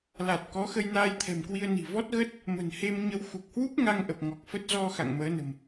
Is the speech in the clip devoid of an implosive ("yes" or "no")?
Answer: yes